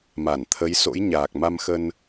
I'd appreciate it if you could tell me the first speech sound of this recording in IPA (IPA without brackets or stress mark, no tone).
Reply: m